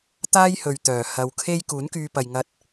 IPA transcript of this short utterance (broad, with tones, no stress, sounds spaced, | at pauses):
t̪ aː˥ j h ɵ˨ ɥ t̪ œː˨˩ h ɐ˨˧ w kʰ e˥ j k uː˨˥ n k yː˧ p ɐ˨ j ŋ ɐ˧ t̚